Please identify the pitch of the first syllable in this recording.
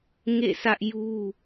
falling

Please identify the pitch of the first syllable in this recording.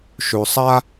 low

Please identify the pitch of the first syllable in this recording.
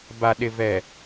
low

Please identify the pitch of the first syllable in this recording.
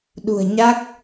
low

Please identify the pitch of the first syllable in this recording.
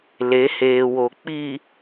rising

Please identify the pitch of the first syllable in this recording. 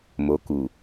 rising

